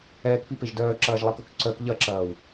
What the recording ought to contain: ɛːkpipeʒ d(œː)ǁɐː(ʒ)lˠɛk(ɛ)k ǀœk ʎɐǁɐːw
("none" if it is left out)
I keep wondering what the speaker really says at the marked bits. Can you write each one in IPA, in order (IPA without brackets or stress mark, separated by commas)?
œː, ʒ, œ